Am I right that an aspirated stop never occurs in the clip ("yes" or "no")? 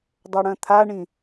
no